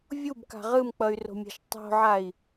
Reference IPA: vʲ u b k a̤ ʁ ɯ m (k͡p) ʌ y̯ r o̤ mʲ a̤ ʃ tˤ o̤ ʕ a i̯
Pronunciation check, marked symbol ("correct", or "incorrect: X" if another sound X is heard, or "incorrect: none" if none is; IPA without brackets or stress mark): correct